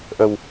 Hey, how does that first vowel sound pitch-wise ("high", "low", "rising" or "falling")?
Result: low